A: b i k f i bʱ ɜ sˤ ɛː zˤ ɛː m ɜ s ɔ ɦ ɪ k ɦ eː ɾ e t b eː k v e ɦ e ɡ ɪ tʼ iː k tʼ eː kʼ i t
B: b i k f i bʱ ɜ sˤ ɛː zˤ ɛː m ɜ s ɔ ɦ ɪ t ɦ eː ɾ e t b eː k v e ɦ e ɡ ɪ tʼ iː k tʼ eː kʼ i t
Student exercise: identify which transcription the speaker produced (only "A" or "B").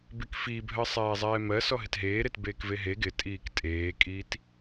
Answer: B